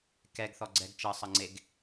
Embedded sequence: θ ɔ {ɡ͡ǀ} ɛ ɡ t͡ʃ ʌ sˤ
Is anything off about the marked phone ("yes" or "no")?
no